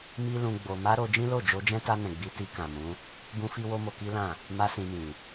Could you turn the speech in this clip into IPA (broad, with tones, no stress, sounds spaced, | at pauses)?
m i˦ l ũ˧ ɡ͡b o˧ m a˦ ɾ o˧ d͡ʒ ĩ˦ l o˦˨ d͡ʒ o˧ d͡ʒ ɛ̃˦ t a˧ n ɛ̃˨ ɡ͡b i˧ t i˧ k ã˨ m ũ˨˦ | b ũ˦ f i˦ w o˦ m o˧ k i˦ l ã˦˨ | m a˦ s ĩ˧ m ĩ˨